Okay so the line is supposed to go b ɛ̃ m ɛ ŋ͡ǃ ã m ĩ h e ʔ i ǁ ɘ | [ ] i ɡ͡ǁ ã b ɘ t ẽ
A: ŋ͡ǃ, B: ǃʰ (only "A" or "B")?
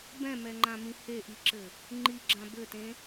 A